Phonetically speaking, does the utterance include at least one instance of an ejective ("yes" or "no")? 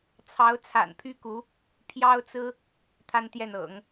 no